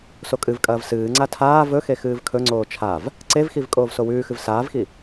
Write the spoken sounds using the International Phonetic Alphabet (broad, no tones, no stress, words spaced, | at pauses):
sokʼɨvkʼɐːv sɨːŋ͡ǀa tʰaː vɵxe xɨːvkʰɵŋ͡ǀoː t͡ʃʰav | ǀevxiv kʼoːvsowʉːxɨv saːvxi